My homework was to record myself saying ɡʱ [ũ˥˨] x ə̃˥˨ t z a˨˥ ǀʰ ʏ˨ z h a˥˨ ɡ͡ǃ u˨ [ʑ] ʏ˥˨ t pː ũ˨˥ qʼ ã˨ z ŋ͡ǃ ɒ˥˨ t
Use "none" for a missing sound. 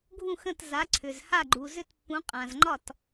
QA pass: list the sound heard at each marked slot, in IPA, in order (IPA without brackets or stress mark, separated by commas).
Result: ũ˥˨, z